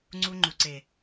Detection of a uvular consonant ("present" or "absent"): absent